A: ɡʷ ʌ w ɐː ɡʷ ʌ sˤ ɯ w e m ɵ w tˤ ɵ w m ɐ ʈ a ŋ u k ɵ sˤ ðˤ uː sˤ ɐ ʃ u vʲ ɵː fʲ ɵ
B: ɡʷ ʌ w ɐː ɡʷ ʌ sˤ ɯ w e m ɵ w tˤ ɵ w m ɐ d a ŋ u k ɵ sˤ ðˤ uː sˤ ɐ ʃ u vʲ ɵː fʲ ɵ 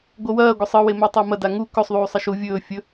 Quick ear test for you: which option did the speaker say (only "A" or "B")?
B